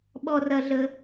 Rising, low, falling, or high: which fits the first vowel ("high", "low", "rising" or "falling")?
high